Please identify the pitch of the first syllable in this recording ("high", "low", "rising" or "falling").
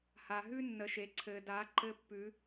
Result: low